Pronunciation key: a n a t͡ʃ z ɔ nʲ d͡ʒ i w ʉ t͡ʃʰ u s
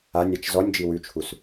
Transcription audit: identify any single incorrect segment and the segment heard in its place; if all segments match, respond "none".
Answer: n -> nʲ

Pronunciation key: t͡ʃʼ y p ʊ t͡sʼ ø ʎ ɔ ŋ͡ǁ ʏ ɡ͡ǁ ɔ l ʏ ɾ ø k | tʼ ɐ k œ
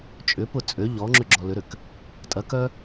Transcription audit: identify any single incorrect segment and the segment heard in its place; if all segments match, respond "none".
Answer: y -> ʏ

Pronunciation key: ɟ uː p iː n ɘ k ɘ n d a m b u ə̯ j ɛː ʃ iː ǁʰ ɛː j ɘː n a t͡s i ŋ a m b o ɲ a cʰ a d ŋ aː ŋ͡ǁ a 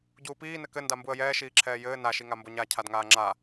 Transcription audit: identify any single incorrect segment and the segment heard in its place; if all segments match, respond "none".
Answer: t͡s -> ʃ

